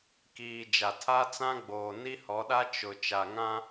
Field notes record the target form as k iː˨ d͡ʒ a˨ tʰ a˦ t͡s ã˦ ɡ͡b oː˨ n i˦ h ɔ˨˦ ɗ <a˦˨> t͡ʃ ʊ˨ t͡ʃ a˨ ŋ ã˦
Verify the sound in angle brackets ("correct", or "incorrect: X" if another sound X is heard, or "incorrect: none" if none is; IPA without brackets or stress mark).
incorrect: a˦